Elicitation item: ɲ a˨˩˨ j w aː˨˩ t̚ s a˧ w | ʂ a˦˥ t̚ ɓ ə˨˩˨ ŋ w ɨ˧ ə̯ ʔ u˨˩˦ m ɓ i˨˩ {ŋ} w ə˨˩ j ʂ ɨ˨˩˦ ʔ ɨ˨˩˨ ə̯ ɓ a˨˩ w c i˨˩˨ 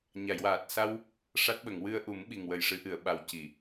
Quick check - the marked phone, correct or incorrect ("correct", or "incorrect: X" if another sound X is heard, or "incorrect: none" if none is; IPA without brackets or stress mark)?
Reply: correct